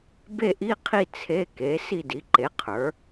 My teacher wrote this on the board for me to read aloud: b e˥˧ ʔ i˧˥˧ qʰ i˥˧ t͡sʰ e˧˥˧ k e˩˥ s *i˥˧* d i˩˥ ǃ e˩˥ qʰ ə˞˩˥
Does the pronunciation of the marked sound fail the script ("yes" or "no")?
no